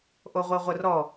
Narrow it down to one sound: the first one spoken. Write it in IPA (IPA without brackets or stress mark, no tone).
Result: ʔ